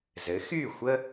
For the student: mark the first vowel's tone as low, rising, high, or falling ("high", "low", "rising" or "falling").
rising